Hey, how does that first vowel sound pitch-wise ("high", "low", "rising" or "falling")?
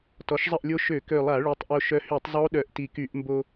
rising